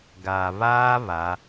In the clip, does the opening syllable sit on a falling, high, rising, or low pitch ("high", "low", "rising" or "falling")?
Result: low